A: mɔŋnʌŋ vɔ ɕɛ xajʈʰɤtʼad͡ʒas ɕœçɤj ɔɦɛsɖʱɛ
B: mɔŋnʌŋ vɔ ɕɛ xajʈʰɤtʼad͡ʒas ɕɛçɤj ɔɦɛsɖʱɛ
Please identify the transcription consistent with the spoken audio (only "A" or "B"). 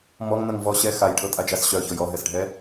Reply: A